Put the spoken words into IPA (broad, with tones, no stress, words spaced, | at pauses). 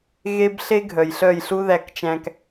ɣe˦bɬe˦ɡʱœ˨j ɬœ˦˨jɬu˦ðæ˧kt͡ʃæ̃˧k